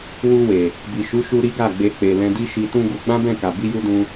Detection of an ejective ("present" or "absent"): absent